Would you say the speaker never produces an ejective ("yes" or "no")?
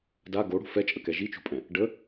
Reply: no